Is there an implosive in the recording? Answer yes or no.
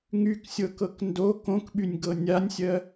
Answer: yes